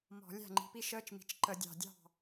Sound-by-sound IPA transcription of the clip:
mɔ̤˧˩˧ lʲæ̤˥˩ŋ͡ǃi̤˩˥pi˦˥ ʃəː˦˥t͡ʃmi̤˨˩t͡ʃ ǃə˧˩˧dʲɑ̤˨˩dʲɑ̤˥˩

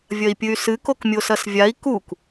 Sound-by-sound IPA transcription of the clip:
vʲɐi̯pʲɨy̯sɨ kokmʲosɐsvʲai̯ kuk

